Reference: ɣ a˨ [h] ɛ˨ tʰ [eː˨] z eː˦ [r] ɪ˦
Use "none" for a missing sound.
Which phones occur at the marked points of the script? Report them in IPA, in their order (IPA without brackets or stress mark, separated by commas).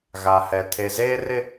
h, e˨, r